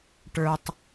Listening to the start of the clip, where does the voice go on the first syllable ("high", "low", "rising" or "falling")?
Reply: low